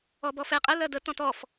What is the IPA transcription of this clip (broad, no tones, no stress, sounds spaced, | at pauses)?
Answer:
ɔ b ɔ f ɛ qʼ ə l ɜ d ə t ɔ̃ t ɔ f